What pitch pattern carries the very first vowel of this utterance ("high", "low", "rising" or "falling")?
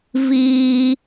high